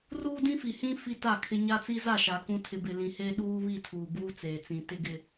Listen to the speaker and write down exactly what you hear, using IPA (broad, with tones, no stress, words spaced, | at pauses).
ruː˦dĩ˦fi˨hĩ˦ fi˦ta˦˨kʰɪ˦ ɲa˦t͡si˦za˦˨ʃa˨ kũ˨tʰɪ˨bɪ˨ lĩ˨he˦ɗuː˦ βi˦˨tʰuː˨buː˦ t͡seː˨t͡sĩ˨ tɪ˦ɡɪ˦